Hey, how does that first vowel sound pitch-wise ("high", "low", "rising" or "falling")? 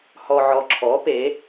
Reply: low